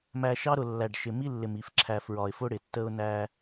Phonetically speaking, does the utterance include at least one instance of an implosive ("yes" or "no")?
no